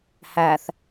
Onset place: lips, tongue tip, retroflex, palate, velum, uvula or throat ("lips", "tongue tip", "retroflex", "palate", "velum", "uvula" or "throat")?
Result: throat